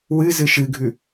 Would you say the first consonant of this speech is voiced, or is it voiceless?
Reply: voiced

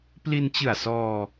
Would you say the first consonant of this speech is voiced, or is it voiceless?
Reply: voiceless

